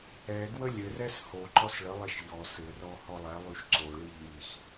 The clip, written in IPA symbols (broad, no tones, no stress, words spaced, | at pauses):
ɛɡwə lʲɘrɛs hoǃɔs ɭəlˠɛʃ ʎɔ sɘrɔ hɔlˠɛlˠyʃ ǀoɭi ʎys